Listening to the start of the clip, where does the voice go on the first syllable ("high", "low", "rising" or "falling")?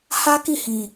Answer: high